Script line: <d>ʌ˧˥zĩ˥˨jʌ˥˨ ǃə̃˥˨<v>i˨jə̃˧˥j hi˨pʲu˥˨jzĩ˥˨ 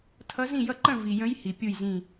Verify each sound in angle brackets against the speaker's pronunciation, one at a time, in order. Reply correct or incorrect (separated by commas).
incorrect, correct